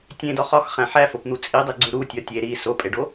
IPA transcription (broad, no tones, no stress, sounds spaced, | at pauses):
tʲ ẽ d ɒ χ ɒ x χ æ̃ ħ æ f o p n̪ u t͡sʼ i dˤ i ɡ͡ǀ u ɾ u tʲ ɒ tʲ e ɾ i s o pʼ e ɖ o